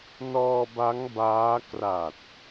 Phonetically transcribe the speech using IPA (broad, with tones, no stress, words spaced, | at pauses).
nɔː˧ba˦˥ŋ baː˦˥ kra˨˩t̚